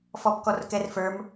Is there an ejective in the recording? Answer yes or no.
no